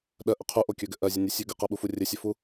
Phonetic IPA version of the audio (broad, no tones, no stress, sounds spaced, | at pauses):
ɗ ɜ ʔ ə qʰ u ʔ o kʲ ɵ ɡ ɘ ʔ ɜ zʲ ə nʲ ɘ sʲ ʉ ɡ ə q ɜ ɓ u f u rʲ ɘ sʲ ɵ f u